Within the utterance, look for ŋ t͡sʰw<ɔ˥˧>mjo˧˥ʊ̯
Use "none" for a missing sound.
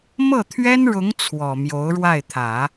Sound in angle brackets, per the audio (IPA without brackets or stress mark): ɔ˨˩